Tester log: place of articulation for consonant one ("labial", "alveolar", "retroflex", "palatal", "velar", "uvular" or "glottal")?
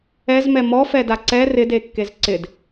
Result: alveolar